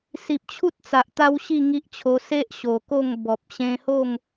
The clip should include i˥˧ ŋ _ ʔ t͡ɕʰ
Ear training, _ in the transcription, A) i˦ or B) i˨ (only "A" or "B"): A